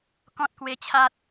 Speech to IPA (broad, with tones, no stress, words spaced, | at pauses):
kɔ̃˦t̚kwe˧t͡ɕʰa˦t̚